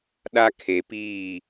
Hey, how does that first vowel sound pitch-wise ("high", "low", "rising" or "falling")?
high